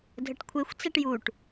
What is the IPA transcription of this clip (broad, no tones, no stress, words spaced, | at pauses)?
dʱəʈkʷʰexʷ t͡sɛʈjuʈ